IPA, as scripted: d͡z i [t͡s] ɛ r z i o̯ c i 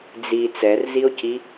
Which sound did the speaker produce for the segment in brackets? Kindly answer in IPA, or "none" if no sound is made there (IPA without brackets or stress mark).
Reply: t͡s